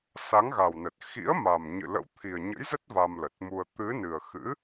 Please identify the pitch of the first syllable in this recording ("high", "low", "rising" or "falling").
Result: rising